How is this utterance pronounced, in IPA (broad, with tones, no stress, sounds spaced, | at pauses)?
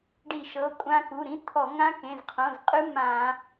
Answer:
ɖ i˧˩˧ ʃ ɤ˩˧˩ kʷʼ ã˦˥ k u˩˧˩ ɾ ĩ˦˥ t̪ʰ ɔ˧˩˧ ŋ ã˦˥ k ẽ˩˧˩ z qʰ õ˩˧˩ z qʼ ɯ˦˥ m ã˧˩˧